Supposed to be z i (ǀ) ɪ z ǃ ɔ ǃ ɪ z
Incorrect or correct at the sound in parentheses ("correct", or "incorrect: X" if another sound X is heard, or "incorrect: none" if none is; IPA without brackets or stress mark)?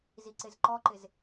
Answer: correct